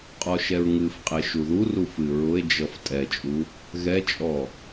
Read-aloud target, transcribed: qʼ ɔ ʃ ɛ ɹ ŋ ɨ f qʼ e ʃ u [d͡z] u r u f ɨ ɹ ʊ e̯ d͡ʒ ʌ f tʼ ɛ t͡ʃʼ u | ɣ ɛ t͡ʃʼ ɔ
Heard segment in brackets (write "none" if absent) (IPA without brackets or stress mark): ð